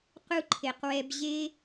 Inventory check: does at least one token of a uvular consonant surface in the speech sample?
yes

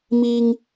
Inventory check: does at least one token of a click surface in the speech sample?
no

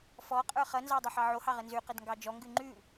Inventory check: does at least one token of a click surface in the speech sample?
yes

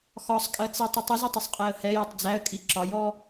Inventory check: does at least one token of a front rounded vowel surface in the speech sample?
no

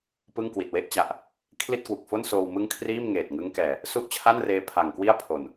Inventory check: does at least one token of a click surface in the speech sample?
no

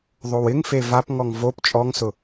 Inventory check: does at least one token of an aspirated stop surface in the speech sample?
no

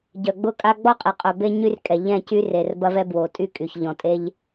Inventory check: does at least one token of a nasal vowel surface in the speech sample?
yes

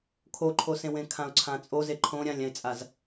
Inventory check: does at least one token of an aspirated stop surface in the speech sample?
yes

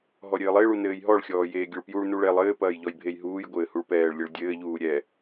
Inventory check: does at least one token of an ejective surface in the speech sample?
no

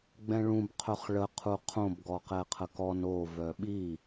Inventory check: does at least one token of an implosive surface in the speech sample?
yes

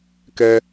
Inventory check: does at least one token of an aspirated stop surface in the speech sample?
no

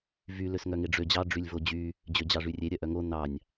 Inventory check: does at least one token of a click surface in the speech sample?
no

